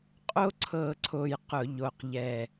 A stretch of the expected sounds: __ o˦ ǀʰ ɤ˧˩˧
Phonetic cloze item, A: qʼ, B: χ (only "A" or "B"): A